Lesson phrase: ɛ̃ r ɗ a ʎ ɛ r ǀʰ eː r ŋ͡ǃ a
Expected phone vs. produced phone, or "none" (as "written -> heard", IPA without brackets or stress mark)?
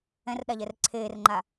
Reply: none